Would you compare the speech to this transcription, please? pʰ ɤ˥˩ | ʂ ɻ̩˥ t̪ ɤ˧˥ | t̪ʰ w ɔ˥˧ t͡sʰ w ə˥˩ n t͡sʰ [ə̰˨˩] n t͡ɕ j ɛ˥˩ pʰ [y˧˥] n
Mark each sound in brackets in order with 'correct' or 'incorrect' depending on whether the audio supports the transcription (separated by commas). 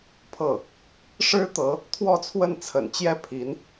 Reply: correct, incorrect